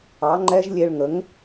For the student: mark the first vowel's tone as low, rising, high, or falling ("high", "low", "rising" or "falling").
rising